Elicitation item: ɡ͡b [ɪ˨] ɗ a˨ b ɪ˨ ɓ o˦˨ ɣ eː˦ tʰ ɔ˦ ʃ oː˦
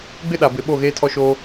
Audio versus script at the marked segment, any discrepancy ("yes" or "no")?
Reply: yes